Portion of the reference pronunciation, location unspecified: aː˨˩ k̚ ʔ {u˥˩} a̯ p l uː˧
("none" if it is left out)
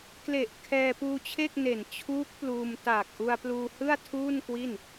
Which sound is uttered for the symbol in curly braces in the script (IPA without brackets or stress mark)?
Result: u˧